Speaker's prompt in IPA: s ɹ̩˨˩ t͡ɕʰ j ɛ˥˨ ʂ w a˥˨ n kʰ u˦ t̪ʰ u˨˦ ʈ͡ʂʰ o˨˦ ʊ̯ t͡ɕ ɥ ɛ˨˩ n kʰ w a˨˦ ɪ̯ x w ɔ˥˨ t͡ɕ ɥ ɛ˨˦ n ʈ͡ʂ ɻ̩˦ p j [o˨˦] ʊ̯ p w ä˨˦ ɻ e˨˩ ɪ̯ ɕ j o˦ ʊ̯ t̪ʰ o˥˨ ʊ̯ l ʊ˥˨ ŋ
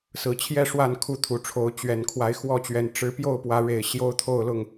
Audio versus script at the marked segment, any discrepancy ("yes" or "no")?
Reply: yes